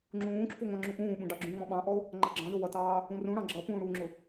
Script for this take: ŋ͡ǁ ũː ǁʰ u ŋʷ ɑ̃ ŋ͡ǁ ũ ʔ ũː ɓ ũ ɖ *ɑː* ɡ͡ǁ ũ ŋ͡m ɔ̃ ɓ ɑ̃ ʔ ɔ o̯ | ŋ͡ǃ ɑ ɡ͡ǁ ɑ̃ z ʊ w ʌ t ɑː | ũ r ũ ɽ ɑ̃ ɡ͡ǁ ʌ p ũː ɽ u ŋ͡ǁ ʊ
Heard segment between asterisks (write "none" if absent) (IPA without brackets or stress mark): ɑ